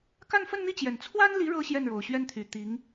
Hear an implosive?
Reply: no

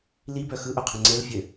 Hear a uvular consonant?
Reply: yes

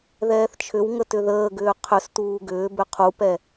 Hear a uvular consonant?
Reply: yes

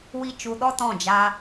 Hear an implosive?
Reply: yes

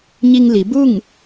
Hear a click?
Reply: no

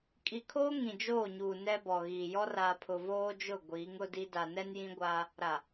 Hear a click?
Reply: no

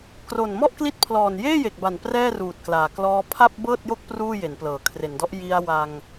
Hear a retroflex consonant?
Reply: no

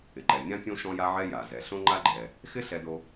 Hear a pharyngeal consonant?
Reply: yes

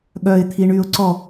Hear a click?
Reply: yes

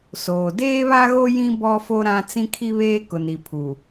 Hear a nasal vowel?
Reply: yes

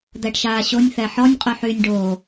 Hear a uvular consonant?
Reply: yes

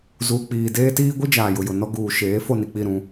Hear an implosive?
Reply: no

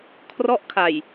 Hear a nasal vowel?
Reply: no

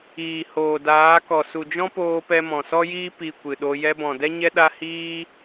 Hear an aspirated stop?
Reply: no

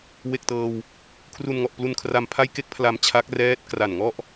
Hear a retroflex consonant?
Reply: no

